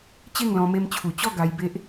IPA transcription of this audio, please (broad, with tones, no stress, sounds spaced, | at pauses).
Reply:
t͡ɕ e˥˧ ŋ l ɔ̃˧ m e˧ m t͡ɕʰ u˨˩ t͡ɕ ɔ˥˧ ɡ a˧ j b e˦ ʔ